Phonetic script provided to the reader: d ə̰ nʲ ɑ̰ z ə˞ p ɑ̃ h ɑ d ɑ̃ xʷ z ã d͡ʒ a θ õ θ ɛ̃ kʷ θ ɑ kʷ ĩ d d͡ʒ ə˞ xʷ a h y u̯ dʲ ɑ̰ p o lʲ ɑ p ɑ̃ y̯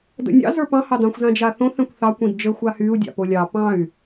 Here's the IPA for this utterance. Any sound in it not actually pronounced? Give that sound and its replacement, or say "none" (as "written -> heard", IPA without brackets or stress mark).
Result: none